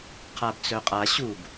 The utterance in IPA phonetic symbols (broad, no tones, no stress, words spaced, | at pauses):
qʰabt͡sœqʼa ɕub